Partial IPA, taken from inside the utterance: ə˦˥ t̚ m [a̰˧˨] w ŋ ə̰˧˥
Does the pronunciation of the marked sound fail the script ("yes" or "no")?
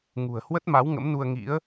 yes